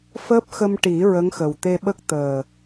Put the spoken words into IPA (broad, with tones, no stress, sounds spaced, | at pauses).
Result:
f əː˦˥ p̚ x ə˧ m ʈ i˨˩˦ ɹ ə˧˥ ŋ x ə˨˩ w t̪ e˧ ɓ ə˦˥ k̚ t̪ əː˨˩